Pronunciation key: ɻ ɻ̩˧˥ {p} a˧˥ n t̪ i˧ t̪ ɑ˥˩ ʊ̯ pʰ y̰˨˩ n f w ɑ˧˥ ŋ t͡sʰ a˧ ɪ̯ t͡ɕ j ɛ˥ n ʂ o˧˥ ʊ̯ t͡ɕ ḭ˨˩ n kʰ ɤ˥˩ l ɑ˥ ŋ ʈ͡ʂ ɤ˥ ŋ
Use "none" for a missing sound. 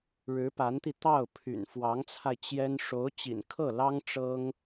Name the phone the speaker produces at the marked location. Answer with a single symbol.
p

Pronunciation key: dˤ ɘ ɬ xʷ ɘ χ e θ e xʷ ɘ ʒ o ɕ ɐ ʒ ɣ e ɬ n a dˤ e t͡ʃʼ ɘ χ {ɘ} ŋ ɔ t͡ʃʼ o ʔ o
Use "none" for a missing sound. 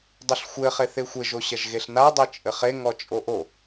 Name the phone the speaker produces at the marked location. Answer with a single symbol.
e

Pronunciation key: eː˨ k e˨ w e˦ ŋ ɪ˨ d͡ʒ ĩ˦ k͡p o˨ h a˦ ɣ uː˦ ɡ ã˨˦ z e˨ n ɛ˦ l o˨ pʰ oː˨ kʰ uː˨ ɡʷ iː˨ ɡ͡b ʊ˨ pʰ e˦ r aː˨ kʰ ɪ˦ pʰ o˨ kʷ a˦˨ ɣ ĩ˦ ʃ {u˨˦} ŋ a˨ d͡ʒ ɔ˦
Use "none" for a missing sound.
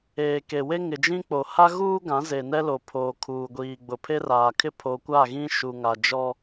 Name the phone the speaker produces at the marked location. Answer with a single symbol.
u˨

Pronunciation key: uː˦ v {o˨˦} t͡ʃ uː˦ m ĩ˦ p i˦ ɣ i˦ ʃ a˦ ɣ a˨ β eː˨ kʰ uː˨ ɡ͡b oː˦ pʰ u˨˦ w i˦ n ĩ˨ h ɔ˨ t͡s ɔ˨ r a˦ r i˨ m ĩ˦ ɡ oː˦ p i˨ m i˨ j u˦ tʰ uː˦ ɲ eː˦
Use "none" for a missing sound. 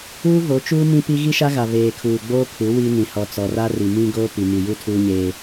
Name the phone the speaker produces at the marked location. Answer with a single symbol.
o˨˦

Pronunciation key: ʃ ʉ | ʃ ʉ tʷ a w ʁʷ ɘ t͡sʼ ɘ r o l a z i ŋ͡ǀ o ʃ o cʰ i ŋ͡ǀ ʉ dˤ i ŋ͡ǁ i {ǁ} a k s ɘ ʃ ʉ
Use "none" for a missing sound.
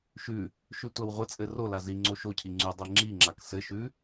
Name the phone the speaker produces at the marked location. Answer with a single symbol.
ŋ͡ǁ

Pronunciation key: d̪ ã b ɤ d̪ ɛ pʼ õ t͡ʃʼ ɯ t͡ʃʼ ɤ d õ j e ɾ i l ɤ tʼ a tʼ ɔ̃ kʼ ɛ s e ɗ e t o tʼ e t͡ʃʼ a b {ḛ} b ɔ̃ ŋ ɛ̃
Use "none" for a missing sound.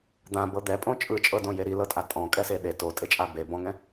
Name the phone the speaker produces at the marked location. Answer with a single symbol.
e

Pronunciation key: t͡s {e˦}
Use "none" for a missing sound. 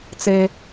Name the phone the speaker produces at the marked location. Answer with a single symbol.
e˦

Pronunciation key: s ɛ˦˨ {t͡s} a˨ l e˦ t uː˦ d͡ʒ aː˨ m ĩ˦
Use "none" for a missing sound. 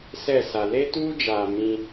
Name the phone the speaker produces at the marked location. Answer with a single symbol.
s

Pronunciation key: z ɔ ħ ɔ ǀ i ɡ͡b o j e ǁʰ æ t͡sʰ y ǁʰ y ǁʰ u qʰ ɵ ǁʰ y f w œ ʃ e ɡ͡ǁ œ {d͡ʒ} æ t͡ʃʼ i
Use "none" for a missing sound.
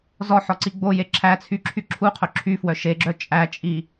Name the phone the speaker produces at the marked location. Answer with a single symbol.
t͡ʃʼ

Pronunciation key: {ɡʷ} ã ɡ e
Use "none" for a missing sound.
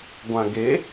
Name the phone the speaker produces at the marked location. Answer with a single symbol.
ɡʷ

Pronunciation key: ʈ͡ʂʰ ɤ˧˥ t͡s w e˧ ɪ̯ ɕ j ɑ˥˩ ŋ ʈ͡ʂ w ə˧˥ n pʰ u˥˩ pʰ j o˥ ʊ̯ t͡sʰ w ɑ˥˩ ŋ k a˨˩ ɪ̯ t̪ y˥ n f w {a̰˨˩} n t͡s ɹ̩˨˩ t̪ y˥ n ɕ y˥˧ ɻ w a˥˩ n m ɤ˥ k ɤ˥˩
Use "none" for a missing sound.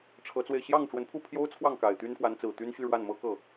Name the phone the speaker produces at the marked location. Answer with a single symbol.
a˧˥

